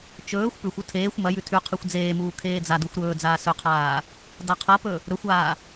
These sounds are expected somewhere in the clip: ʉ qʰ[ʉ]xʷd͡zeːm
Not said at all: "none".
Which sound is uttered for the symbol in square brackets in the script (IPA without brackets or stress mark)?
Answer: ʉ